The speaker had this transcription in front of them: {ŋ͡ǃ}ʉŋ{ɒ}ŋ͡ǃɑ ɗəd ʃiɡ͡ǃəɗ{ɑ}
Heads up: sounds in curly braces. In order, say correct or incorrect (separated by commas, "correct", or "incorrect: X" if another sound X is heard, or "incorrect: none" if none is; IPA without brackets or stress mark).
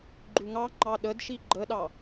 incorrect: ɡ͡ǃ, incorrect: ɑ, correct